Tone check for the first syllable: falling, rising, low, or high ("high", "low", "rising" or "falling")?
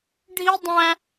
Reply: high